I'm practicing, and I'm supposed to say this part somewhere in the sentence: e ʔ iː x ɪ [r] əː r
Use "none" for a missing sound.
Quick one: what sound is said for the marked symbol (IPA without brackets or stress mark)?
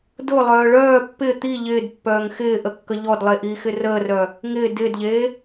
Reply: r